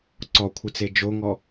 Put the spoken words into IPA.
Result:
ǀ ɔ kʷʰ ɨ t͡s e d͡ʒ o ŋ ɔ

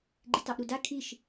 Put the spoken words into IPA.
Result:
ɡ͡ǃ i t ɑ ʔ ɾ u d a kʰ i ʃ

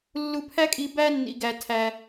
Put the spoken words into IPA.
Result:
lː u˧ pʰ æ˦ kʼ i˧ b æ˧ nː ḭ˨ ɡ æ˨ tʰ æ˧

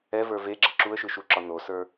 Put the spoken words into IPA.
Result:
ɛ v ə˞ v e ɡ͡ǁ ə ǁ u ə̯ ʃ ɯ ʃ u ǁ ɒ n o s ə˞

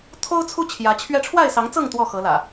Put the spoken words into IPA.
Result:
t̪ʰ o˦ ʊ̯ t͡sʰ u˦ t͡ɕʰ j ä˨˦ t͡ɕʰ ɥ ɛ˦ ʈ͡ʂʰ w a˥˨ ɪ̯ s ɑ˨˦ ŋ t͡s ɤ˥˨ ŋ t̪ w ɔ˥˨ x ɤ˨˦ l ä̰˨˩

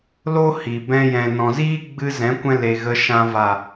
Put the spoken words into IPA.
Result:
l o˦ h i˨ b ɛ̃˧ j ɛ̃˨ n ɔ̃˨ z iː˦ ɡ͡b ɨ˧ z ɛ̃˨˦ kʷ ɛ̃˧ l e˨ ɣ ə˨ ʃ ã˨ v a˨

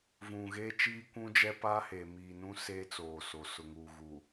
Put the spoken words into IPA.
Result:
v ũ˨ ɣ eː˦ t͡ʃ iː˦ kʷ ũ˦ d͡ʒ ɛ˦ p aː˦ h eː˨ m iː˨ n ũ˦ s eː˦ t͡s oː˨ s o˨ s ʊ˨ ŋ uː˨ ɣ u˨

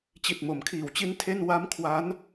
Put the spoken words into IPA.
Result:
t͡ɕ i˨˩ t̚ m o˩˦ m kʰ iː˨˩ w t͡ɕ i˧ n tʰ e˥˩ n w a˦˥ m kʰ w a˦˥ n

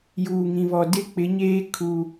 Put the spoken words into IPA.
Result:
j uː˨ ŋ ĩ˨ β ɔ˨ d ɪ˦ k͡p ɪ˨˦ ɲ eː˦ kʰ u˦

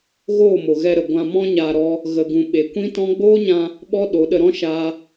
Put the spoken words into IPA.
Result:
ɣ oː˦˨ m o˨ ɣ ɛ˧ ɾ ə˨ ɡʷ ã˧ m ɔ̃˦ ɲ aː˧ ɾ ɔ˦ | ɣ ə˧ ɡ ũ˧ ɓ e˨ kʷ ĩ˦ t ɔ̃˦ ɡ͡b oː˦ ɲ ã˧ | ɓ ɔ˦ ɗ o˨˦ ɗ ə˧ ɾ ɔ̃˦ ʃ aː˦

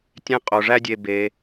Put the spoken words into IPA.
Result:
tʲ ẽ˦ qʼ o˩ ʐ æ˦ dʲ e˨ b e˩

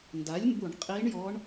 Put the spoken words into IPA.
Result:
n d a˩˥ lʲ m b u˧˩˧ ɳ qʼ i˧˥ ɳ j ɔ˧˥ ɳ

